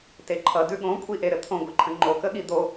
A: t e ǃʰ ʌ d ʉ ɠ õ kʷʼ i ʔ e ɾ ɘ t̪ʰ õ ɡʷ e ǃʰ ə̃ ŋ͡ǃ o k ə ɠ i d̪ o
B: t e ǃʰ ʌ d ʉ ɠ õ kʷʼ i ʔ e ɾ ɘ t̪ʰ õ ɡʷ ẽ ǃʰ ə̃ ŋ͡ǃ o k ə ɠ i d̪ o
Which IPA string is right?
A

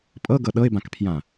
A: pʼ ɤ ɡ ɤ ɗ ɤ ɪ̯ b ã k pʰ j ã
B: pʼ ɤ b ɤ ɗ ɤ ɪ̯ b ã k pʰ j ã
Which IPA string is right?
A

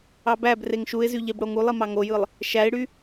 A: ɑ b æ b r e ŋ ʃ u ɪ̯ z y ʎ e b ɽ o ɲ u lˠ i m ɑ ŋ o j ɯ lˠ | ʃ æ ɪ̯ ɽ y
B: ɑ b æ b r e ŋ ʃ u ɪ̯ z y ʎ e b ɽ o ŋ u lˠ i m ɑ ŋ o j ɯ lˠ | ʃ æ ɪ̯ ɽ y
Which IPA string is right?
B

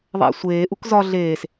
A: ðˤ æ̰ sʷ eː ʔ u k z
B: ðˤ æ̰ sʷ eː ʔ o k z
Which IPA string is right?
A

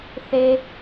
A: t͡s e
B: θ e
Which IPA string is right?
B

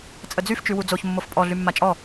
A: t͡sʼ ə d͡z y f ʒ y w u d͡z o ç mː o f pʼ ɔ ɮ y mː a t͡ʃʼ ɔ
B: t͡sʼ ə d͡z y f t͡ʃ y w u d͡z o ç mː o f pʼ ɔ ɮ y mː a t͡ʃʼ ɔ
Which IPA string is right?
B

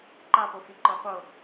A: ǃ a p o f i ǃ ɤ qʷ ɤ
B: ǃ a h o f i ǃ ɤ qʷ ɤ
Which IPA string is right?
A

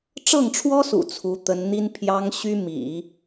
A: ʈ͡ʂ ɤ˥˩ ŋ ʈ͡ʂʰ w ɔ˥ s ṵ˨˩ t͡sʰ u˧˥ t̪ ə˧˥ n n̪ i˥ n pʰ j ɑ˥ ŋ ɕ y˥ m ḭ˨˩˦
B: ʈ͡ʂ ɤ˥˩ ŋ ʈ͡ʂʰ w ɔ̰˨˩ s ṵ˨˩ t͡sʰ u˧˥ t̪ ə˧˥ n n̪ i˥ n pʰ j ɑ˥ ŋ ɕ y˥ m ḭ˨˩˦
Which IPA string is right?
A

